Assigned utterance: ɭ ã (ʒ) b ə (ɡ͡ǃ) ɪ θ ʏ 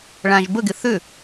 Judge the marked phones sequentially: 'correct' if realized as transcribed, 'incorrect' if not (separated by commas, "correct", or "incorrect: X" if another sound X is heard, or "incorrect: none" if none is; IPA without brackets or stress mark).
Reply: correct, incorrect: ɡ